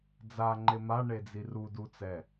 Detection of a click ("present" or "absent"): present